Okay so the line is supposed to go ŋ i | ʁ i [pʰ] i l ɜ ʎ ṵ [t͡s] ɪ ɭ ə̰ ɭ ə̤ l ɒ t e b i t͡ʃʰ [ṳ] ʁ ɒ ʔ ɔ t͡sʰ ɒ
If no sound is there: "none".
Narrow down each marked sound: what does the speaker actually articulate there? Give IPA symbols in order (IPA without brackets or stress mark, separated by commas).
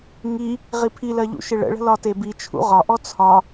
pʰ, ʃ, ṵ